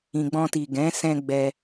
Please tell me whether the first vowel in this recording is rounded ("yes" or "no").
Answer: no